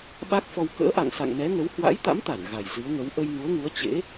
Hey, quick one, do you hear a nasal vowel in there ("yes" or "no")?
no